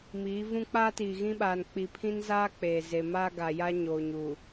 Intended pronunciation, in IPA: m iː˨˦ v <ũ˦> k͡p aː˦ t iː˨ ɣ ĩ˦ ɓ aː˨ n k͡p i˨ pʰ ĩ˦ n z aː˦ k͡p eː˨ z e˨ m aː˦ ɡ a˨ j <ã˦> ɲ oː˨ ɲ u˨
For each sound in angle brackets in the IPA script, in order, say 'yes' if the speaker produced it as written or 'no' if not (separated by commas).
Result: yes, no